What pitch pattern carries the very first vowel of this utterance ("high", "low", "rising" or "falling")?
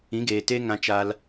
rising